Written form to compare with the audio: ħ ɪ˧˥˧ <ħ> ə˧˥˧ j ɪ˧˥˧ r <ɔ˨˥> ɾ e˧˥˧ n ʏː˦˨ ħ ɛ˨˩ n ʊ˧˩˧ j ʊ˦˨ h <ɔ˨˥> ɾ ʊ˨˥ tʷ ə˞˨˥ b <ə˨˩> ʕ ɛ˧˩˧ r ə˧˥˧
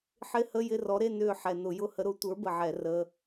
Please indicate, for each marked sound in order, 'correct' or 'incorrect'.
incorrect: h, correct, incorrect: ə˨˥, correct

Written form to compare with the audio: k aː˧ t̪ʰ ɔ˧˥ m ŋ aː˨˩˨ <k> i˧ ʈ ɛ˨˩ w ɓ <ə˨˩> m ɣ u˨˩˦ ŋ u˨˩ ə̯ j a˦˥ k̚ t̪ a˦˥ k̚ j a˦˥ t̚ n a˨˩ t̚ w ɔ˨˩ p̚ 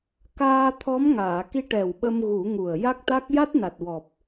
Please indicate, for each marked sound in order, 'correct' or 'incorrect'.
correct, incorrect: ə˧

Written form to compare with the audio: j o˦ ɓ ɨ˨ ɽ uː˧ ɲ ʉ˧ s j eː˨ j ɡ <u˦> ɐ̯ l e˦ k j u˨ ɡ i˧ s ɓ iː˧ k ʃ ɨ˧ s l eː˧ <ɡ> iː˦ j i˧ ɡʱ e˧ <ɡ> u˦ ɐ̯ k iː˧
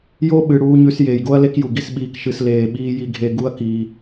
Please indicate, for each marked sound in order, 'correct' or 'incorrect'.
incorrect: o˦, incorrect: ɓ, correct

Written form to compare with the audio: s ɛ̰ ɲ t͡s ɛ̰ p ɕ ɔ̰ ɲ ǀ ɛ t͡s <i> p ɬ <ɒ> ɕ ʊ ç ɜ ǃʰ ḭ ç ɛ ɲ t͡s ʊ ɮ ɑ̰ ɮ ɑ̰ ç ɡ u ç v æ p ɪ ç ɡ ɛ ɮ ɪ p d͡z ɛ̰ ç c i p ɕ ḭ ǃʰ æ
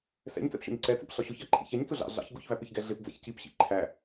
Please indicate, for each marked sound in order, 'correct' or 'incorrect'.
incorrect: ḭ, correct

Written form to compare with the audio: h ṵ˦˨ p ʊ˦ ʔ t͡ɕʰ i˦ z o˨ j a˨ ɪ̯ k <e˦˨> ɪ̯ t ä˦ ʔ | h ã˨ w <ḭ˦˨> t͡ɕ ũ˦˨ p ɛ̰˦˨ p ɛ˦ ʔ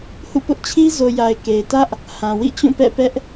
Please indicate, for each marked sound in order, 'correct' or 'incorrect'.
incorrect: e˨, correct

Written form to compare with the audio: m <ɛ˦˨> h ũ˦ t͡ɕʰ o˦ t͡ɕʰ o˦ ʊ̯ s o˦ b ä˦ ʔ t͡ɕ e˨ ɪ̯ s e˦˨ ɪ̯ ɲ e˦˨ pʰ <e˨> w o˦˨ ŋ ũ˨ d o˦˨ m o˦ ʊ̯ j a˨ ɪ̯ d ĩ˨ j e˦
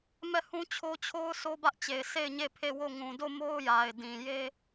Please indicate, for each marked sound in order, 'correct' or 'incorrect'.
correct, incorrect: e˦˨

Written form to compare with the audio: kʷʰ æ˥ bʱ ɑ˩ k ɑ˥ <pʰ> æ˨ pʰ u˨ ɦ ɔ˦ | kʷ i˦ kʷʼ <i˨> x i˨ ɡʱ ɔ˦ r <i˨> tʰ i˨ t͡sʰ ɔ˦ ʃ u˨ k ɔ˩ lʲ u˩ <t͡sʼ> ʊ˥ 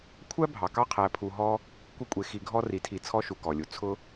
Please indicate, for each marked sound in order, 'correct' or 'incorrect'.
incorrect: qʰ, incorrect: e˨, correct, incorrect: t͡sʰ

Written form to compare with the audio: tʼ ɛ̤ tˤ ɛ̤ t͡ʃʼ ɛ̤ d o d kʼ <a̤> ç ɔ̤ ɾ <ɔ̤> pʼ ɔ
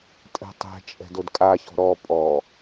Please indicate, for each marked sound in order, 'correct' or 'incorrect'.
incorrect: a, incorrect: ɔ

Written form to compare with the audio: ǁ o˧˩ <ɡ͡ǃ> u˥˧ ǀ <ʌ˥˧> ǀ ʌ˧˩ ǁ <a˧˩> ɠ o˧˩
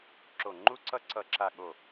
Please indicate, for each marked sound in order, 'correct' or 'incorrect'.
incorrect: ŋ͡ǃ, correct, correct

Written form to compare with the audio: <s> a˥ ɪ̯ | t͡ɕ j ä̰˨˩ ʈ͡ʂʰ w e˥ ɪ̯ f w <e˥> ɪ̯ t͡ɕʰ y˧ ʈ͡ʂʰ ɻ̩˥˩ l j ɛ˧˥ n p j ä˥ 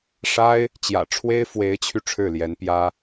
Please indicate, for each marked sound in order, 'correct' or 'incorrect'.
incorrect: ʂ, incorrect: e˧˥

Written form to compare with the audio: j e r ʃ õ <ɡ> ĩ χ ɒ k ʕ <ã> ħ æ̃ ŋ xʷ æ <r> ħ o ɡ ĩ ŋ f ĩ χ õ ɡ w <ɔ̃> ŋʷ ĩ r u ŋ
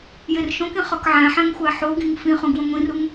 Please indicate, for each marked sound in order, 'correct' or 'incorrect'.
incorrect: k, incorrect: æ̃, incorrect: none, incorrect: õ

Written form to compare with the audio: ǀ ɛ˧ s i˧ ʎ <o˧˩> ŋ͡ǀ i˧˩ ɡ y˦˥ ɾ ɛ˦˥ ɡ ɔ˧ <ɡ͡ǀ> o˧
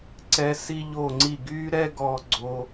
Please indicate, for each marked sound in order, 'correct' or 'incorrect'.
correct, correct

